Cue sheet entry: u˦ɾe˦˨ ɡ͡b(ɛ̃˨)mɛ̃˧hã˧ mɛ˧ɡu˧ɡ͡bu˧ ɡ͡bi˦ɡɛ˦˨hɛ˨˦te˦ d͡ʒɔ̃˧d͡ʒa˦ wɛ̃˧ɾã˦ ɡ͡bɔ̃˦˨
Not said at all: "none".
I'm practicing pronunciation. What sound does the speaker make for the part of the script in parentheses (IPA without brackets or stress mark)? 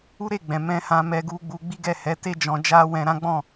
ɛ̃˨